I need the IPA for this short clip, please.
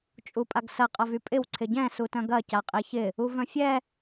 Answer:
t͡ʃʼupʼaɡsɐ qʼɐvypʼɪw ǀʰɪɟɛ̃ sutœ̃ɡɐ caqʼeçɪ | uvœ̃fʲɛ

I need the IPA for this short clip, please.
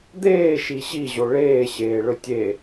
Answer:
d̪eːʃi ɕiʑo ɭeːɕeːɭɵ tʲe

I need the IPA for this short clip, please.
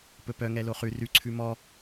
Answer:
pɵpœ ŋɛloχʉ rʉ ǀʰʉmɔ

